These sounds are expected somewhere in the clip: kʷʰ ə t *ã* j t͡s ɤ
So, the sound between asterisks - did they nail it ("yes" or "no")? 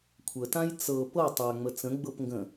yes